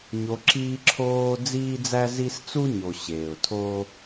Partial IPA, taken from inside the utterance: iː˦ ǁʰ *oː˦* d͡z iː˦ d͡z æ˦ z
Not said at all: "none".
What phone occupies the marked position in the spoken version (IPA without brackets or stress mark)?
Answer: oː˦